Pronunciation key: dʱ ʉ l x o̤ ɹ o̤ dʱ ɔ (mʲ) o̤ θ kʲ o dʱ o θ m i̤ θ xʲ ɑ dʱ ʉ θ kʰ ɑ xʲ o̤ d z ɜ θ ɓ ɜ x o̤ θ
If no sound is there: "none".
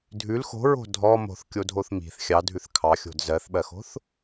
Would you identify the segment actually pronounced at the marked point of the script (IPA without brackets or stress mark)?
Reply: m